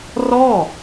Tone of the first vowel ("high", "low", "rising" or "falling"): falling